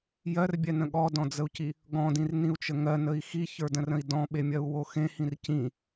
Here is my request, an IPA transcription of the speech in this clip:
j ɜ r bʲ ɛ n ə̃ ɠ ɔ d ɔ̃ d͡z ə u̯ c i | ɡ ɔ̃ d ĩ r n ĩ u̯ t͡ʃ ə ŋ ɜ n ə i̯ x i ç ə˞ d ə̃ r ə̃ i̯ d ɔ̃ ɓ e mʲ ɜ u̯ w o x ẽ h ĩ r c ĩ

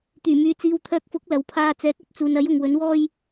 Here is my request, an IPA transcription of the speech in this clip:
t̪ yː˨˩ m yː˨ t͡s iː˨˧ w t̪ʰ œː˧ k̚ f ʊ˨˥ k̚ l ɐ˨˧ w pʰ aː˧ t͡s ɛː˨˥ k̚ ɐ˨˥ t̚ t͡s uː˨ n ɐ˨˥ j ʊ˨ ŋ w ɵ˨˥ n w ɔː˥ j

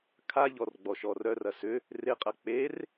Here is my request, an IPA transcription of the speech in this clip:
kʰ a ʎ ɔ r ɡ͡b ɔ ʃ ɔ r œ r ɐ s ʏ | r ɪ qʼ ɐ k͡p e r

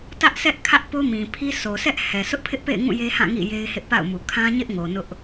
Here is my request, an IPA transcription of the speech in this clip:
t ä˦ ʔ sʰ ɛ˦ ʔ kʰ ä˦ ʔ p o˦ m ĩ˨ pʰ i˦ sʰ o˨ s ɛ˦ ʔ h ɛ˨ s ʊ˦ ʔ pʰ ɪ˦ ʔ p ḛ˦˨ ɪ̯ ŋ ũ˦˨ j e˦ h ã˦˨ ŋ ḭ˦˨ j e˦ ɪ̯ h ɪ˦ ʔ p a̰˦˨ ʊ̯ m u˨ kʰ ã˦ ɲ ɪ˦ ʔ ŋ o˨ n ʊ˦ ʔ

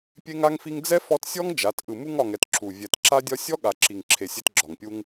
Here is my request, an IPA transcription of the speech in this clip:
pʲ e˦ ŋ a˦ ŋ f i˦ ŋ d͡z ɛ˦ f ɔ˧ t sʲ ɔ˦ ŋ d͡ʒ a˨˦ t ʔ ɯ˨ m u˧ ŋ ɒ˨ ŋ ɛ˨ t ǁ u˨ vʲ ɛ˨ t ǁ a˦ dʲ ɒ˦ sʲ ɔ˦ ɠ a˨ ǁ i˨ ŋ ǁʰ e˨ sʲ e˧ t ɡ͡ǁ ɒ˨ ŋ pʲ u˦ ŋ

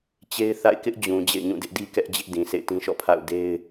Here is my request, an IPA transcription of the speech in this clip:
t͡ɕ e˦ ɪ̯ θ a̰˦˨ ɪ̯ k ɪ˦ ʔ d͡ʑ ũ˨ d͡ʑ ḛ˦˨ ɪ̯ ɲ ũ˦˨ d ɪ˦ ʔ d i˦ k ɛ˦ ʔ d͡ʑ ɪ˦ ʔ d ĩ˨ s ḛ˦˨ ɪ̯ t ĩ˦ ʃ ɔ̰˦˨ pʰ a̰˦˨ ʊ̯ d e˦ ɪ̯

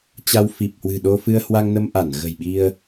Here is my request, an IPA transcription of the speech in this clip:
t͡ɕ a˧ w f i˨˩ p̚ h w ɨ̤˨˩ ɗ o˧ f ɨ˧ ə̯ h w a˧ ŋ n ə˧ m ʔ a˧˩ n ɣ ə̤˨˩ j ɓ i˧ ə̯

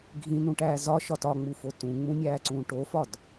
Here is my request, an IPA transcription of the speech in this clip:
ɡʱ ĩ n ũ ʈ æː z ɒ ʃ ɒ t ɒ ŋ͡m u f o t ũ ŋ͡m ũ nʲ æː ǀ ũː ʈ o f ɒ d

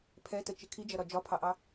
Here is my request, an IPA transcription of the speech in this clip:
pʰ ɛ t ə t͡ʃ ɪ kʰ i d͡ʒ ʌ ɾ ɒ d͡ʒ ɒ pʰ ɑ ʔ ɑ

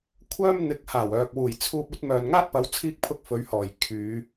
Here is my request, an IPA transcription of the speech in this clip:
kʷʰ œː˥ m n̪ ɪ˨˥ k̚ h aː˨˩ w œː˨ k̚ w uː˨˩ j t͡sʰ uː˧ p̚ ɵ˨˥ t̚ m œː˨ n ŋ aː˥ t̚ p ɐ˨˥ w t͡sʰ iː˥ k̚ pʰ ʊ˥ k̚ f ɵ˨˧ ɥ h ɔː˨˩ j kʰ yː˨˧

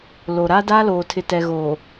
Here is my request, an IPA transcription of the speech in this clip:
l o˨ ɾ a˦ d aː˦ l oː˨ tʰ ɪ˨ t ɛ˨ ɣ oː˨

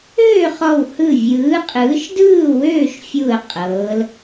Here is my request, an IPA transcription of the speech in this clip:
øː˥˨ χ ɔ˧˩ w h ɯ˧˩ vʲ ɯː˨˥ qʼ ɯː˨˥ ʃ d ɯː˥˨ w øː˥˨ ʃ fʲ u˧˩ ə̯ qʼ ɤː˨˥ l

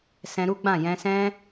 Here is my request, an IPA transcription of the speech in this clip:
s ɛ̃˧ ɾ u˦ ɡ͡b ã˦˨ j ɛ̃˧ s ɛ̃˦

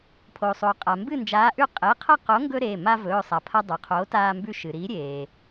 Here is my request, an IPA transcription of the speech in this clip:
pʰ o˩ sˤ o˩ qʼ a˩ m b ɨ˥˨ n d͡ʒ aː˨˥ ʔ ʉ˥˨ qʼ e˩˧˩ qʰ ɐ˥˨ q o˨˥ ŋ ɡ ɵ˦ ɾ e˩˧˩ m a˦ v ɵː˩˧˩ sˤ a˩ pʰ ɐ˦ dˤ ɵ˩ qʰ oː˨˥ t aː˦ m b ʉ˦ ʃ ɨ˩ ɾ i˨˥ ɾʲ eː˩

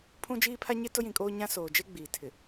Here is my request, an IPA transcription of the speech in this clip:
pʰ ũ˦ d͡ʒ iː˦ pʰ a˦ ɲ ɪ˦ t ʊ˦ j ĩ˨ kʼ oː˦ ɲ ã˦ s oː˨ d͡ʒ e˦ ɡ͡b iː˨ tʰ ɪ˨

